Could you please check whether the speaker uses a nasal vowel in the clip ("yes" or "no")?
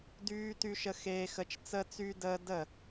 no